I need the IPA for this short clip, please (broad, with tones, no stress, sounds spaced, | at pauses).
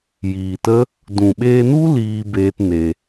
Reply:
j iː˨ t ə˦ | d ũ˨ ɓ eː˧ n u˦ l iː˦ b eː˦ t n e˧